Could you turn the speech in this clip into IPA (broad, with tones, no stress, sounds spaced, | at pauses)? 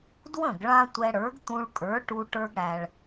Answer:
d w ə̃˥˩ ɡ ɭ ã˥ tʷ ɛ˧ ɽ ə˞˩˥ ɡ t̪ ũ˧ ɭ kʼ ə˞˩˥ ʈ u˧ ʈ ə˞˧ ɡ ɽ æ˩ ɭ